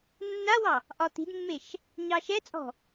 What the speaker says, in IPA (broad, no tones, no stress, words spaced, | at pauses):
nːawɑ | ʔɒt̪i̤dmːeʃ | ɲɑʃɛt͡sʼɔ̤